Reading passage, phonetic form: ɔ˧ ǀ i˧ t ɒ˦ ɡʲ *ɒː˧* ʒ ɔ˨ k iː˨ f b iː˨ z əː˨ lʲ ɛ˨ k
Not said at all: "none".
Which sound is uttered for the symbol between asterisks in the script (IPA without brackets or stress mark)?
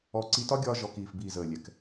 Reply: ɒː˧